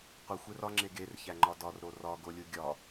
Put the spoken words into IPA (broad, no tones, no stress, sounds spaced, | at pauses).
qʷ i xʷ e r ɒ ŋ͡ǁ e ɡ e r ç æ ŋ͡ǃ ɒ d ɒ r ɾ o r ɒ ɡ o lʲ u ɡʲ ɒ